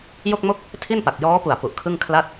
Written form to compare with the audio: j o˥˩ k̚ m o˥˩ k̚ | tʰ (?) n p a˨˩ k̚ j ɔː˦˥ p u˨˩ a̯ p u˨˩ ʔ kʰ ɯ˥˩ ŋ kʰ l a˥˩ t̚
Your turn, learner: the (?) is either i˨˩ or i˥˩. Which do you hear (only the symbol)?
i˥˩